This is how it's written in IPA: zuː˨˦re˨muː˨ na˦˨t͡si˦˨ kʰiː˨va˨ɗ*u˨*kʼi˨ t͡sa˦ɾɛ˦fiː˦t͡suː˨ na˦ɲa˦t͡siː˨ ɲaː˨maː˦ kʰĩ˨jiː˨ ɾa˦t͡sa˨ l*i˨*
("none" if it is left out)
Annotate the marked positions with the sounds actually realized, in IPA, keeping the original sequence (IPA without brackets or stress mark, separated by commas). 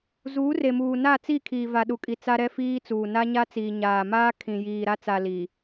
u˨, i˨